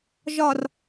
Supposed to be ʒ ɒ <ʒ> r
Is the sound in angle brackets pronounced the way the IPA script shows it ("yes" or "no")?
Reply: no